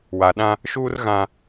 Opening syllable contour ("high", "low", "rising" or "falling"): low